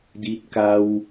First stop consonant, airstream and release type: plain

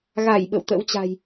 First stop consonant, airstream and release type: implosive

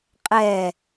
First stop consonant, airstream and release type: ejective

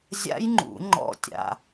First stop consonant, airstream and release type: click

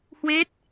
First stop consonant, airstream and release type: plain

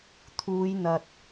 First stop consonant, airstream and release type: aspirated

